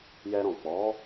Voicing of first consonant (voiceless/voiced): voiced